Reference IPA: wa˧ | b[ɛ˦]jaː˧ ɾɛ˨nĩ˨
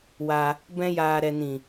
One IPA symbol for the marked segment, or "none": ɛ̃˦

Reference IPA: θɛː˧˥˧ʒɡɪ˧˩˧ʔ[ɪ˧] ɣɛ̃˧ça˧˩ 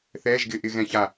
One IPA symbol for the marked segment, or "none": ɪ˧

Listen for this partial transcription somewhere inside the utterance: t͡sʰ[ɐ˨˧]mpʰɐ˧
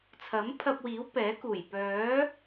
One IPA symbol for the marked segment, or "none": ɐ˨˥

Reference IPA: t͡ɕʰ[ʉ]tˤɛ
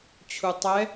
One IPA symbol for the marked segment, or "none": u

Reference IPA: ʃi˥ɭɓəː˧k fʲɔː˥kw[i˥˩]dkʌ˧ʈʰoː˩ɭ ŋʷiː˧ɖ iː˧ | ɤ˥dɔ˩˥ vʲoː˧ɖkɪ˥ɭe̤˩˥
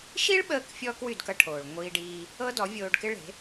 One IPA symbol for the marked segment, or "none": y˥˩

